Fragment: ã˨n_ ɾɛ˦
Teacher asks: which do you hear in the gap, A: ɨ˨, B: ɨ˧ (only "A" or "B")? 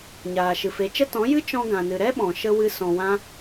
A